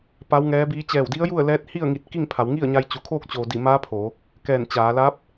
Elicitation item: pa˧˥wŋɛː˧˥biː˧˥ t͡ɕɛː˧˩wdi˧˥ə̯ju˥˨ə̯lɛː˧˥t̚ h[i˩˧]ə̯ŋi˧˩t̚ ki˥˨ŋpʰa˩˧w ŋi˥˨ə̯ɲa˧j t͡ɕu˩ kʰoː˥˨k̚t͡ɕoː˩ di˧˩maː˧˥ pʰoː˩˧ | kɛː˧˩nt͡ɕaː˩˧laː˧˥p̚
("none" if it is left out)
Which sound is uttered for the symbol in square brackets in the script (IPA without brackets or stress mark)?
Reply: i˥˨